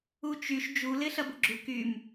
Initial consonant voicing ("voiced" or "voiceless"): voiceless